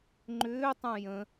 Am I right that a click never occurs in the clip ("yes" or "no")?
no